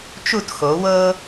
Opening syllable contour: falling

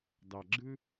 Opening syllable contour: low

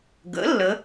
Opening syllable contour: rising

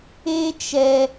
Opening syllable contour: high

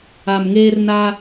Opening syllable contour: low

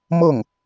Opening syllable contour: falling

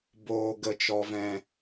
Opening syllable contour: low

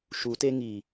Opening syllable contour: rising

